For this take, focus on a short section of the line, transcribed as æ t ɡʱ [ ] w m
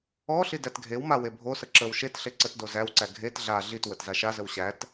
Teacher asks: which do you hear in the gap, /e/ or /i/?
e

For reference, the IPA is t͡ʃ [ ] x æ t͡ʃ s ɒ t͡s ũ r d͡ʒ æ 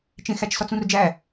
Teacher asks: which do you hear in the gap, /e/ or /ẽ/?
ẽ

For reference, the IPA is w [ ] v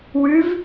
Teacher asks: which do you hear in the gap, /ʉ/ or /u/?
ʉ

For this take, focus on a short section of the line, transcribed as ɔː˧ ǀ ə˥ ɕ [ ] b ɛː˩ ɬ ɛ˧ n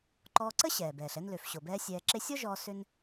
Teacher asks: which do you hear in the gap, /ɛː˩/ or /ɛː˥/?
ɛː˩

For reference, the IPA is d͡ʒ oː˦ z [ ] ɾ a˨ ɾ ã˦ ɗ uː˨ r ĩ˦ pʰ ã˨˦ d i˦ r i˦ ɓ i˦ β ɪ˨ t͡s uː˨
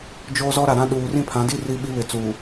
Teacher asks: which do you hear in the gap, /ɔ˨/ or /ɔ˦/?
ɔ˦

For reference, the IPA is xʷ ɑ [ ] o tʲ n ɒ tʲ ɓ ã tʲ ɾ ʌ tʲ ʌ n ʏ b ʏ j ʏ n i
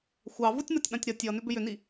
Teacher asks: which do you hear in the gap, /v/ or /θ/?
v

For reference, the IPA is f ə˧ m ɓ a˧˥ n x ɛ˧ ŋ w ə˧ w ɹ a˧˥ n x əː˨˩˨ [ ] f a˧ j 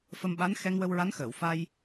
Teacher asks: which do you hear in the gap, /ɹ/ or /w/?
w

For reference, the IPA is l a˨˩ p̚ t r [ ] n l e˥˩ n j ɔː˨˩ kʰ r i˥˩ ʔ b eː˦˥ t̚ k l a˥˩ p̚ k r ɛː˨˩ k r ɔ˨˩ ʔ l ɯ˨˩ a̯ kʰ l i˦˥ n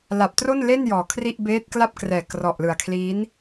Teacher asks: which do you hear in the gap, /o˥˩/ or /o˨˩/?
o˥˩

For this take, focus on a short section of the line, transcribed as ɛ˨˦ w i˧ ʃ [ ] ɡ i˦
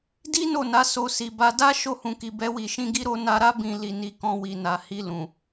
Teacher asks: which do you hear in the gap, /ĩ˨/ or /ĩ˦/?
ĩ˦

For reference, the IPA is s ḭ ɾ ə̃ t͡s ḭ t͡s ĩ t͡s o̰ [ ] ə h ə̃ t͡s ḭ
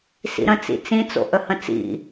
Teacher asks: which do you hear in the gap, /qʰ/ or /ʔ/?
ʔ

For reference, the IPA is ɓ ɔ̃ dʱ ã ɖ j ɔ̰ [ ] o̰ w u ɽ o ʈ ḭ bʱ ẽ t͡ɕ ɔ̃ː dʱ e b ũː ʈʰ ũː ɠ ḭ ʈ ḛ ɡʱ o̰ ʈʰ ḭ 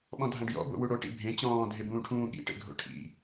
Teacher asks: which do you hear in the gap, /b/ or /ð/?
b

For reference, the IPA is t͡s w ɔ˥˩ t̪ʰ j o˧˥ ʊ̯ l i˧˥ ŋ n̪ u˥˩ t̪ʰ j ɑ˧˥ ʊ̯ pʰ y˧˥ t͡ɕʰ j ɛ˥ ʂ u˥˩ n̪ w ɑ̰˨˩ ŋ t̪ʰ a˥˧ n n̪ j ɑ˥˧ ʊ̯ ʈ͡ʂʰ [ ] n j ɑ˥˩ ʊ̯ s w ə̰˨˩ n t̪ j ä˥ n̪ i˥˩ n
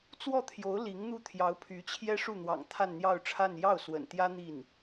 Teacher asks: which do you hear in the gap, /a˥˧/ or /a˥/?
a˥˧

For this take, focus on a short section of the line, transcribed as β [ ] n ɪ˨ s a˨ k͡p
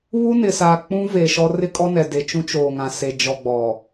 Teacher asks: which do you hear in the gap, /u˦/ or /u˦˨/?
u˦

